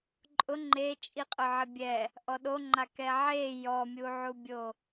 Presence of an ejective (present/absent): present